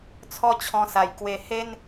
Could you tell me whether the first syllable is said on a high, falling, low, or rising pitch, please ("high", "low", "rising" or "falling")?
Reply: falling